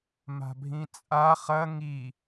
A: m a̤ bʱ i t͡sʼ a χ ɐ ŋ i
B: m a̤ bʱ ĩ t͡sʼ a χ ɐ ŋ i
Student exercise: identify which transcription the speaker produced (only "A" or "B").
B